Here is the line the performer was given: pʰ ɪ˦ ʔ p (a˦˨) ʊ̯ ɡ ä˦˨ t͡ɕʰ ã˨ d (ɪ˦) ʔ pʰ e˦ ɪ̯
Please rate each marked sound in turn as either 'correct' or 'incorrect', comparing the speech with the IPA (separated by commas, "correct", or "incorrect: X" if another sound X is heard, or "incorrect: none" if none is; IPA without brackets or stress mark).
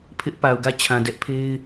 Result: incorrect: a˨, incorrect: ɛ˦